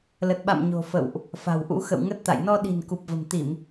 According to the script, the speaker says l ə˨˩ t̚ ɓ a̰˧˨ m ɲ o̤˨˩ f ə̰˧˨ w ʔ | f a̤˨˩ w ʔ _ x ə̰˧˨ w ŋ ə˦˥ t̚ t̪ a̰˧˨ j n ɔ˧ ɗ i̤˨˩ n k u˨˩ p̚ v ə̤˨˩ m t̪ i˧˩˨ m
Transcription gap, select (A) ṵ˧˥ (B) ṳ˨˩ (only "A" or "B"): A